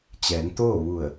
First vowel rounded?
no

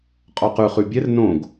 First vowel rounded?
yes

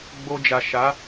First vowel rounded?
yes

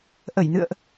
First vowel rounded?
no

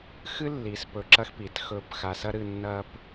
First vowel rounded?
no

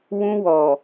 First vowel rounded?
yes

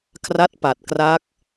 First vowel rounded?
no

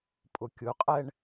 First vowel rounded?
yes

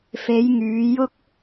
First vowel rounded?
no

